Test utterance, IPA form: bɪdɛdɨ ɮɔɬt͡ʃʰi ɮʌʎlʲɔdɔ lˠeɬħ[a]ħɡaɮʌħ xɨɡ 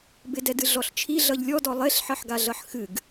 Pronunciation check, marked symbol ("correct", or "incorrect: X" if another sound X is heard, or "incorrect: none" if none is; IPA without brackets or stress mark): incorrect: ʌ